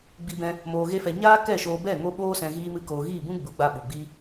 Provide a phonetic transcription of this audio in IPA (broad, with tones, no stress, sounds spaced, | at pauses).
ɡ͡b i˧ b ɛ̃˧ | m oː˧ ɣ e˦ f ɛ˧ ɲ aː˦ k ɛ˦˨ ʃ oː˧ b ɛ˦˨ ŋ o˦ ɓ oː˦ s ɛ̃˧ ɣ iː˦ m ɨ˦ k oː˧ ɣ iː˦˨ b ũ˦ ɡ͡b u˨˦ ɡ͡b a˧ ɓ u˨ ɡ͡b i˧